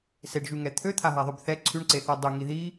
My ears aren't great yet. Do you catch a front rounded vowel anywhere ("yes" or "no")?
yes